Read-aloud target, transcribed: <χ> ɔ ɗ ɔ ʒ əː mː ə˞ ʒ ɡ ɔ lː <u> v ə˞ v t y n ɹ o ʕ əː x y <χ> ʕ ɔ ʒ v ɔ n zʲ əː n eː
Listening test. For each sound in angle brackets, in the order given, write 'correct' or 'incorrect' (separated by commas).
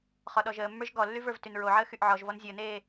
correct, incorrect, incorrect